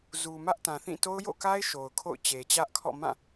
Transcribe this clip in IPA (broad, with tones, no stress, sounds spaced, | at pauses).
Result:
z u˨ m ä˦ ʔ t ã˨ θ ĩ˦˨ t o˦ ʊ̯ j o̰˦˨ k a˦ ɪ̯ ʃ o˨ ʊ̯ kʰ o̰˦˨ ʊ̯ t͡ɕ e˨ t͡ɕ ä˦ ʔ kʰ ɔ̰˦˨ m ã˦˨